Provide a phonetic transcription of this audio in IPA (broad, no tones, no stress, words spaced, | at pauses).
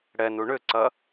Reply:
ɽɛnu ɳʏǀɐ